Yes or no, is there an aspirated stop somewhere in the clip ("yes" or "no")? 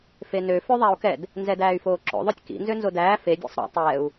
no